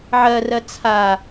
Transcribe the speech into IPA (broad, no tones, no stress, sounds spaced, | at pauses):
ʕ ɜ r ɜ t͡sʰ a